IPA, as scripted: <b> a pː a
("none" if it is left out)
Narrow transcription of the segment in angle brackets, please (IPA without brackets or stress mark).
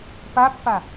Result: p